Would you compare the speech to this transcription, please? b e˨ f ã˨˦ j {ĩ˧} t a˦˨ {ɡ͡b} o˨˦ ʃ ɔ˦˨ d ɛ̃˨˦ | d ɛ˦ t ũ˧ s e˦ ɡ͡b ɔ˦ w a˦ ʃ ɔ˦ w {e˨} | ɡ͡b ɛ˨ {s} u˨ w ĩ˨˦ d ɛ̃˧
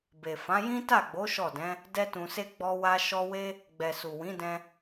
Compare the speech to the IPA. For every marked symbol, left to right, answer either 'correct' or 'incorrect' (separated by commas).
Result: incorrect, correct, incorrect, correct